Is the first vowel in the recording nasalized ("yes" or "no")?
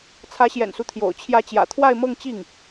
no